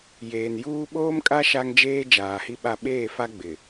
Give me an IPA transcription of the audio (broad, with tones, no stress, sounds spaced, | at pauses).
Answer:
j eː˨ n j uː˦ ɓ oː˦ m kʼ a˦ ʃ a˦ ŋ d͡ʒ eː˦ d͡ʒ aː˨ h i˦ ɓ a˦˨ ɓ eː˦˨ f a˦ ɡ͡b ɪ˨